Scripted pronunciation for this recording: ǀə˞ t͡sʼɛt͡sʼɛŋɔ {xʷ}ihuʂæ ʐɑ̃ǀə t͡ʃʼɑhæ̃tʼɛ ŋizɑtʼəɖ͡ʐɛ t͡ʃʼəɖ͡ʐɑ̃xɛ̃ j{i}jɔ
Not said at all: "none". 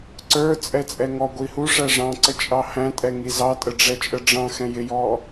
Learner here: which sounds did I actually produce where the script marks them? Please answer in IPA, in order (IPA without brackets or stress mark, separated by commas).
ɡʷ, ɪ